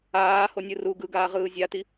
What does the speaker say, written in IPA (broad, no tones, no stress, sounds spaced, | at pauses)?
aː h o nʲ ɯ r u ɡ ɯ ɡ aː ʁ ɯː zʲ a t i